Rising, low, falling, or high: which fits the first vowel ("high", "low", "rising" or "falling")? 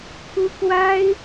high